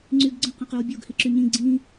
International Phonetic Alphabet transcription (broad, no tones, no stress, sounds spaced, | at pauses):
ŋ͡ǀ y ɡ ɡ͡ǀ ə̃ q ə̃ q y w bʲ o ɡ h i ǁ y ɲ ĩ ɡ͡ǀ ĩ